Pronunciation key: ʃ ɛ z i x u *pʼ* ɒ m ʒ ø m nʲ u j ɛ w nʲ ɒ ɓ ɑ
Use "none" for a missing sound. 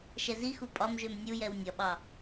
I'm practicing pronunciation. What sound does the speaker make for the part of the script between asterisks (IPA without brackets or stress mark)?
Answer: pʼ